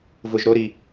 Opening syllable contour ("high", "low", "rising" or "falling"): high